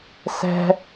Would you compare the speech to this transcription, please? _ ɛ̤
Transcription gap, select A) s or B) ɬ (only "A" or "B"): A